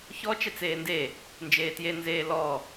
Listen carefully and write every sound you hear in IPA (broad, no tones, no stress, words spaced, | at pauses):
çɔ t͡ʃɛt͡seːnde | nd͡ʒeːtje nzeːlɔ